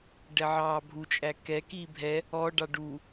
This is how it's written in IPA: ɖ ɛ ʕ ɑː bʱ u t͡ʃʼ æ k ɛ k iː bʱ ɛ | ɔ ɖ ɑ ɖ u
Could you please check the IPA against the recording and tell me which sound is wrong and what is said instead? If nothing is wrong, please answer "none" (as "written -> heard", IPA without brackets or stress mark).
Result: none